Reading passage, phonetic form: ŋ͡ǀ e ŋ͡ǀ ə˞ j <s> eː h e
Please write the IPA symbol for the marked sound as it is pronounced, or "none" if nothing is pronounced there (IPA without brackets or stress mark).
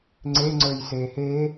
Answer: s